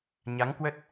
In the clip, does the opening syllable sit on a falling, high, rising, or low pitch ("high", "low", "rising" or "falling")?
rising